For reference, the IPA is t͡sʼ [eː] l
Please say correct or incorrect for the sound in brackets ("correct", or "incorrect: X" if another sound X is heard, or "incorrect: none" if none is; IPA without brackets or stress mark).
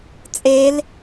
correct